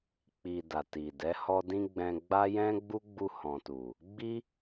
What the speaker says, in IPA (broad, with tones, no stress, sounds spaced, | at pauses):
k͡p i˨ d a˨ t i˨ d ɛ˨˦ h ɔ˧ d ĩ˧ ɡ͡b ɛ̃˧ ɡ͡b a˦ j ɛ̃˦ ɡ͡b u˦ ɡ͡b u˧ h ɔ̃˨ t u˨ | ɡ͡b i˦